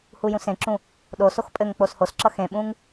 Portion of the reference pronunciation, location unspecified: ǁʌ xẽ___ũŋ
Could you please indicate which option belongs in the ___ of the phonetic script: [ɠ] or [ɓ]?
ɓ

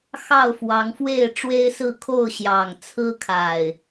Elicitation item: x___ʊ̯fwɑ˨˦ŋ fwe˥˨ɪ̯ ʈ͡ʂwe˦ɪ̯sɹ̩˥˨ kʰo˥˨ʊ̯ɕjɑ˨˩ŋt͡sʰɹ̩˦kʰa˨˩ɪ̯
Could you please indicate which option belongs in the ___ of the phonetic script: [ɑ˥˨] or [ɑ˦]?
ɑ˥˨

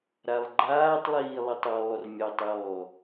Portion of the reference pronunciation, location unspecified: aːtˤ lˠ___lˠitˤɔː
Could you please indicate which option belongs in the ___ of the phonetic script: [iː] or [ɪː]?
iː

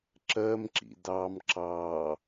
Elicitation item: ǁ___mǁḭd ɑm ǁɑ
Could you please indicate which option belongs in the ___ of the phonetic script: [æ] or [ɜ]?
ɜ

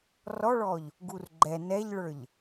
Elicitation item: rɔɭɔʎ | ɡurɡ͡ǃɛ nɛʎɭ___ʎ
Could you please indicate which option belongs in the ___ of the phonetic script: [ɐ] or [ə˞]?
ə˞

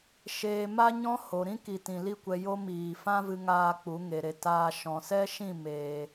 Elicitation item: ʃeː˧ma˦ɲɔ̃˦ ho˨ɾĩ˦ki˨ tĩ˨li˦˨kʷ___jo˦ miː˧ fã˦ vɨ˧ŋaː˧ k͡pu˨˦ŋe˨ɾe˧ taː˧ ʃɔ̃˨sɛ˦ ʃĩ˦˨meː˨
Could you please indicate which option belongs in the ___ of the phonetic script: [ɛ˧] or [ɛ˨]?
ɛ˧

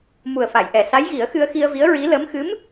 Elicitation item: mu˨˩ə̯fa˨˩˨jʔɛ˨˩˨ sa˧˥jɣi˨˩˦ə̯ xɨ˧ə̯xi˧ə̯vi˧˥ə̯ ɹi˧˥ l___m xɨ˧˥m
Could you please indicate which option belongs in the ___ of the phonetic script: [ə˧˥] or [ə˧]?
ə˧˥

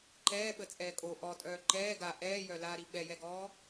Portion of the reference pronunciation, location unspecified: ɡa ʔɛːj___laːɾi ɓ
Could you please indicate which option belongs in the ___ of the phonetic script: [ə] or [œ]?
œ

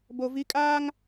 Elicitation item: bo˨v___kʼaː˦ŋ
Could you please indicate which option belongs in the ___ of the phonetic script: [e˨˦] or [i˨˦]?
i˨˦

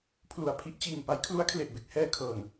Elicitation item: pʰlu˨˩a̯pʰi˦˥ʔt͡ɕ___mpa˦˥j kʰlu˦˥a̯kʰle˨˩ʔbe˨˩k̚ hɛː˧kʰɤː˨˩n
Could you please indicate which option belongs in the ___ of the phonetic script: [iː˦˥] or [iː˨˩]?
iː˨˩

